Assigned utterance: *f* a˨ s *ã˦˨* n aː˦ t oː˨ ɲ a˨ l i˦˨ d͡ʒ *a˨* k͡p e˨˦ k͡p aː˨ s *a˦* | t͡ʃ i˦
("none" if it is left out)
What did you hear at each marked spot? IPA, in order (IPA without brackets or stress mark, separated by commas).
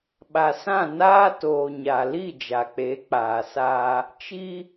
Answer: ɓ, ã˦˨, a˨, aː˦